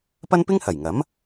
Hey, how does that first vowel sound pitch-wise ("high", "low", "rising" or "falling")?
high